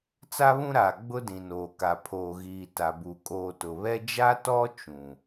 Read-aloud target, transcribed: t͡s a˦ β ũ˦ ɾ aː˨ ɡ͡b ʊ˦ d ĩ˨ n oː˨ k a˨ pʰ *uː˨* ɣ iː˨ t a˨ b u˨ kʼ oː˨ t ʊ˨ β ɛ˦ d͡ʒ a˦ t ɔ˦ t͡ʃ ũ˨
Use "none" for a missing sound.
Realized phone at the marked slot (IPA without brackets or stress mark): oː˨